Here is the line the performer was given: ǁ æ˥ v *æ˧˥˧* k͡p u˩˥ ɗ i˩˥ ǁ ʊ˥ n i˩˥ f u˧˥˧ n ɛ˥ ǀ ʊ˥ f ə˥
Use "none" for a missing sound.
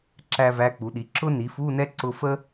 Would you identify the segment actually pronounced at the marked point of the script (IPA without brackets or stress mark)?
æ˧˥˧